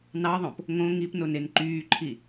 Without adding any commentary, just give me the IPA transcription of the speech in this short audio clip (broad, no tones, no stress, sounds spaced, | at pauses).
n ɑ ðˤ õ p | ŋ õ ŋ i p n o n e n ǃ yː ǃʰ i